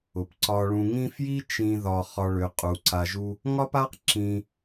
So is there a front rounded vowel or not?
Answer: yes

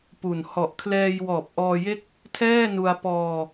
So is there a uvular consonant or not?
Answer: no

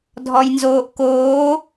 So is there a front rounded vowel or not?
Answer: no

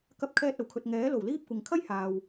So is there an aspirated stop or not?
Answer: yes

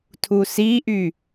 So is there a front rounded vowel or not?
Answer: yes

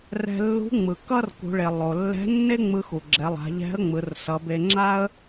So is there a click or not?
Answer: yes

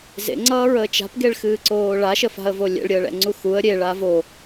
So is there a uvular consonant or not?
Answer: no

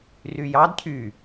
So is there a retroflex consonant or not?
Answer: no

